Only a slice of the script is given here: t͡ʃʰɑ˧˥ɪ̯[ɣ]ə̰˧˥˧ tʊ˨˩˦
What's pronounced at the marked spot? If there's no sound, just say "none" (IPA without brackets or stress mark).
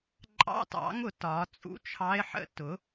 ħ